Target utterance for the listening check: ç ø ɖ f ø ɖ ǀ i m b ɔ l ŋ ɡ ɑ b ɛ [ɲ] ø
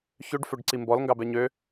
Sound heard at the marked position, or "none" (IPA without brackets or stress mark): ɲ